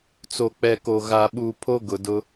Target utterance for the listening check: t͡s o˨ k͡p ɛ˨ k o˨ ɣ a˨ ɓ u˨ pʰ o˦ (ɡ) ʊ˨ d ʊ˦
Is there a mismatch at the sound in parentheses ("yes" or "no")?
no